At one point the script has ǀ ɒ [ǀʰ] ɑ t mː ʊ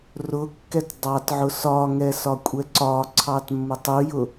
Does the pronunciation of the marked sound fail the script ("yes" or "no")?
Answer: no